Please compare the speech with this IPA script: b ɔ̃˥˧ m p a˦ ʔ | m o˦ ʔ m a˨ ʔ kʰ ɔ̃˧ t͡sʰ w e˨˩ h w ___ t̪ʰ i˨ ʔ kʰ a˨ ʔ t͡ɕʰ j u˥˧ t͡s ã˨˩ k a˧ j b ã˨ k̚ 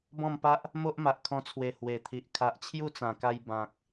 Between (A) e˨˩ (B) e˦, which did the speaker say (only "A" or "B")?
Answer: A